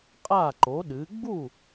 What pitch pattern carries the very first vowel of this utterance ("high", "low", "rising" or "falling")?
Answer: falling